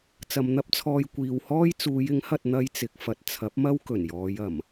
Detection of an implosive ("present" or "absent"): absent